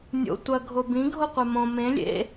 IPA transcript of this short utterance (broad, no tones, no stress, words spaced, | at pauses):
nʲo̰ tʷɐ ɡʱobĩ ɡʱoqʷemõ mẽ lʲḛ